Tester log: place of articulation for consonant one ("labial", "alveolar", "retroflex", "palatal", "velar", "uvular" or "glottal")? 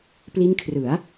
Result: labial